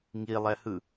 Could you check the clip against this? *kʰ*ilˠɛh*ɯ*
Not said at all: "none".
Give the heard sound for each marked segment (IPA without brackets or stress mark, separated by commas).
ŋ, ɯ